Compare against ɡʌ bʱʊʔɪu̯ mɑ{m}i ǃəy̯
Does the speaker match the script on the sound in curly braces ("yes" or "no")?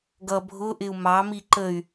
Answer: yes